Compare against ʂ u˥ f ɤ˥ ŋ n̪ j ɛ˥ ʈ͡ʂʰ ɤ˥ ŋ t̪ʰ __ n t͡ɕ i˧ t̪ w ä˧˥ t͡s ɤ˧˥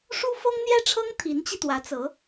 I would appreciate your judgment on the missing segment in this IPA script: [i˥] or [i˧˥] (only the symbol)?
i˧˥